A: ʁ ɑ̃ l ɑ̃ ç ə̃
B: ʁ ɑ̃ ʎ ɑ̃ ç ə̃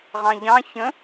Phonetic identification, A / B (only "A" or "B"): B